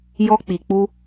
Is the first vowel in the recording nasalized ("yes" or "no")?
no